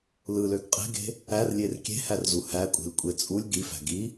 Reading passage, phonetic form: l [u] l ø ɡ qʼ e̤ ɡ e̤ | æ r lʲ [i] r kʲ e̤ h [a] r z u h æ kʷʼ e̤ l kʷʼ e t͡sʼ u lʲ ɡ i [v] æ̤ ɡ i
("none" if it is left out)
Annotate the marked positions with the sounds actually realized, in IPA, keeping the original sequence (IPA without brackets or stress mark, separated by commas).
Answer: ɯ, e, æ, f